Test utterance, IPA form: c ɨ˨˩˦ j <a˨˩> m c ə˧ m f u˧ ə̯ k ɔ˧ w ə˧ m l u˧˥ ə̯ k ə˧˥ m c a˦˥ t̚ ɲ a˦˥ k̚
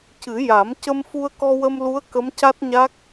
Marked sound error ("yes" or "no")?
yes